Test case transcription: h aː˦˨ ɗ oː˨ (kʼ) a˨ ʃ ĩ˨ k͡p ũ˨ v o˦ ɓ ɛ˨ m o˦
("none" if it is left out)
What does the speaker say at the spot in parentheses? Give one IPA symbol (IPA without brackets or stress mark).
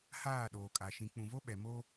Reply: kʼ